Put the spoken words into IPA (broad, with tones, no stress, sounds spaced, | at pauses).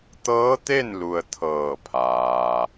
t̪ ɤː˧˥ t̪ e˥˨ n l u˩ ə̯ t̪ʰ ɤː˧˩ pʰ aː˩